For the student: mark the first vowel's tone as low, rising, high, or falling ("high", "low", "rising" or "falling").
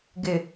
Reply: low